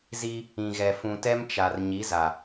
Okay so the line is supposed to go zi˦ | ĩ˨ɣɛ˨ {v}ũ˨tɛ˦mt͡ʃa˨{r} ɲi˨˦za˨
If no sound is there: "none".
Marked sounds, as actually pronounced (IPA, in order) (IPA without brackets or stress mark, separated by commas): f, r